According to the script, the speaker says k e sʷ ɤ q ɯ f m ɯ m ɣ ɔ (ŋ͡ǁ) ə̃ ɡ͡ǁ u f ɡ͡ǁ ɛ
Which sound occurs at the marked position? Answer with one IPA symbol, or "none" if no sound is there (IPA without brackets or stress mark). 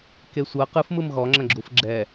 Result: ŋ͡ǁ